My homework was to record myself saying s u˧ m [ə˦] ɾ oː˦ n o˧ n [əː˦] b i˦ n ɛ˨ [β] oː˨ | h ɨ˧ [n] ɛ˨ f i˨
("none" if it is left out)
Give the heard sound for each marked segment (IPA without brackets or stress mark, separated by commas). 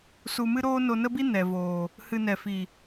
ɨ˦, ə˦, v, n